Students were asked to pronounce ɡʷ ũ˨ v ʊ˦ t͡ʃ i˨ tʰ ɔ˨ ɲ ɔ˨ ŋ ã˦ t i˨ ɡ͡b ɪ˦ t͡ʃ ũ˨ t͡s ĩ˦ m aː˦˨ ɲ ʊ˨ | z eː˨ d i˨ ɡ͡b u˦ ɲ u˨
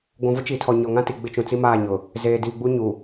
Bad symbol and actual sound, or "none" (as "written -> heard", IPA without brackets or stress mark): ĩ˦ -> i˦